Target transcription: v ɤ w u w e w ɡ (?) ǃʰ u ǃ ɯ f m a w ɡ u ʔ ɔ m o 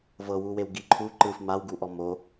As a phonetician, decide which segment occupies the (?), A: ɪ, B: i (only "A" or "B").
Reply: B